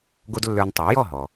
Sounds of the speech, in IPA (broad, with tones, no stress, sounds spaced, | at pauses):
ɡ o˥ d lː ə˞˧ n tˤ ɑ˩˥ j ɔ˥˩ ɦ ɔ˩